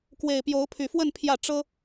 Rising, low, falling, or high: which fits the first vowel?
low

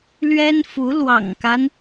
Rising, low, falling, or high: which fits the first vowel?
high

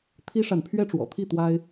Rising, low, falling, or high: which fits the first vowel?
high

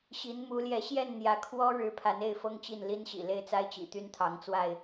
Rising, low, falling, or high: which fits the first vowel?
rising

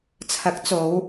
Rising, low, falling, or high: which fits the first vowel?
rising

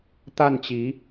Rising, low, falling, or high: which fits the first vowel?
falling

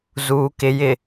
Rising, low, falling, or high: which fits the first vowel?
low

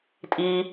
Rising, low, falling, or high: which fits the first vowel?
high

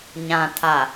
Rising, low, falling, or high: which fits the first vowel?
low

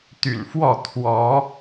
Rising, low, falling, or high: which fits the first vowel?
low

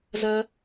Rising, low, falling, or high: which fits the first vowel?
high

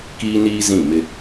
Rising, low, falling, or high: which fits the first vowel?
high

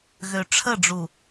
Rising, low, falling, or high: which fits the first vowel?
low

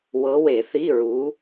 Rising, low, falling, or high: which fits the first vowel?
rising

